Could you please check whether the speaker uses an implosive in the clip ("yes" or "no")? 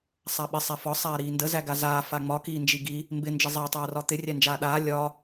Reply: yes